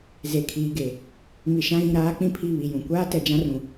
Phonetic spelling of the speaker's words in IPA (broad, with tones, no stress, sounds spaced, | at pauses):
z e˨ kʰ iː˨ ɡ e˨ | m i˨ ʃ ã˦ ɣ ĩ˨ ɾ aː˦ k͡p ĩ˦ pʰ i˦˨ β i˨ j ũ˨ kʷ aː˦ t ɛ˨ d͡ʒ ã˦ r ũ˨